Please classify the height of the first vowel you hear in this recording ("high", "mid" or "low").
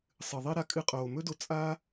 high